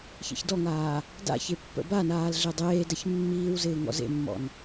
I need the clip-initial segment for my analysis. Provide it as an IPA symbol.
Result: ç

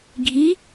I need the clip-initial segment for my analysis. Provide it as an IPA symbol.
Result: ɡʱ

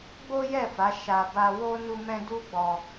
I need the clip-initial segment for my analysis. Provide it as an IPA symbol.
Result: ɡ͡b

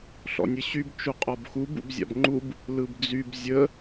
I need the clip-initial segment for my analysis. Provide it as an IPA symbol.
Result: ɬ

